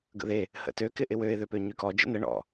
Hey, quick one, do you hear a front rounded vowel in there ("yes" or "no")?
yes